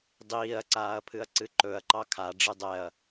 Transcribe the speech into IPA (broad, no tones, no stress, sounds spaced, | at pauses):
dˤ iː ɐ̯ ǀ aː ɐ̯ pʰ ɨ ɐ̯ ǀ ɨ ǃ ɵ ɐ̯ ǃ ɑ kʰ a ɖ͡ʐ ɨ dˤ ɛ ɐ̯